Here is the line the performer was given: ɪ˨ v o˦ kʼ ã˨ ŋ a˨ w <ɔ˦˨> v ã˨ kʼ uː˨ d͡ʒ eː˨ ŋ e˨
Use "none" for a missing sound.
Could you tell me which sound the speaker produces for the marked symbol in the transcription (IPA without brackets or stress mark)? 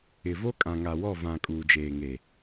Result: ɔ˦˨